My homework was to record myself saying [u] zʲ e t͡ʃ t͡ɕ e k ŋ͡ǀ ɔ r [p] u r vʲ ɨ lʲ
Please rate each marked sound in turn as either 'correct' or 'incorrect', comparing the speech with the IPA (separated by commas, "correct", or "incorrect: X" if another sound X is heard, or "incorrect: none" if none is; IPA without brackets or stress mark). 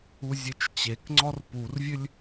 correct, correct